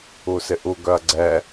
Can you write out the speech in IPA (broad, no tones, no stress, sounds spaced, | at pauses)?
u s ɪ ʔ u ɡ œ ɐ̯ ɡ͡ǀ ɛ